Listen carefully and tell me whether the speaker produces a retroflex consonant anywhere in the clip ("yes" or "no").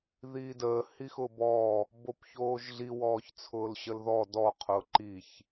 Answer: no